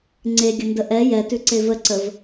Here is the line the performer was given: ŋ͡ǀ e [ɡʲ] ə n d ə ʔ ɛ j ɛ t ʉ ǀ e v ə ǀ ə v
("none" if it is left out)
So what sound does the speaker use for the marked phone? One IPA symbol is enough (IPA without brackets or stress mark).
ɡʲ